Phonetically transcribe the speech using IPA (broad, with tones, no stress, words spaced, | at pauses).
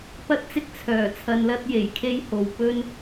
pɐ˥t̚t͡sɪ˥k̚ t͡sʰœː˨˩t͡sʰɐ˧nlɐ˥t̚ je˨˩jkʰe˥jho˨w pɵ˥n